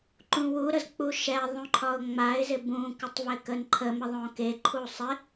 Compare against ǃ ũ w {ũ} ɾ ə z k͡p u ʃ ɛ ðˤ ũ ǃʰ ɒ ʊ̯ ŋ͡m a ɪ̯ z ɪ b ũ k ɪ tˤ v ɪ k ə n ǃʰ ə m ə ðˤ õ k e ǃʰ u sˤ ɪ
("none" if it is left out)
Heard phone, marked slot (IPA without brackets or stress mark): u